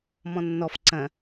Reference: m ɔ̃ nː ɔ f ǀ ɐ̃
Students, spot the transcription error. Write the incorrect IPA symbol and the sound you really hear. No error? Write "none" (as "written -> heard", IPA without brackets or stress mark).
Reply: none